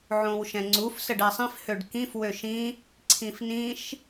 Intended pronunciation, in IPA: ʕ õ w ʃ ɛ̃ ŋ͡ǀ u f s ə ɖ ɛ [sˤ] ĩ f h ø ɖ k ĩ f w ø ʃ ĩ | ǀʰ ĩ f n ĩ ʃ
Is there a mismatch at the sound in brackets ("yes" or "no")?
no